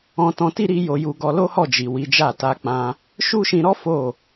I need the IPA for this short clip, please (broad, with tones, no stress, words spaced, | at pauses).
ɔ̃˧tɔ̃˧ti˦ɾi˧ jo˧ju˧ɡɔ˧ lo˦hɔ˦˨d͡ʒi˨ wi˨˦d͡ʒa˦˨ ta˧k͡pã˧ | ʃu˦ʃĩ˧ɾɔ˦ fo˦˨